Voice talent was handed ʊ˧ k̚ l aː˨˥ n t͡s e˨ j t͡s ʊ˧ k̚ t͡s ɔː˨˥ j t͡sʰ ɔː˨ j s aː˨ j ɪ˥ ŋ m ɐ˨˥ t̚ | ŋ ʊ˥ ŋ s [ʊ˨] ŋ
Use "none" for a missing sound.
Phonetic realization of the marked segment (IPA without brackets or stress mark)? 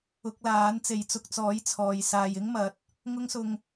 ʊ˧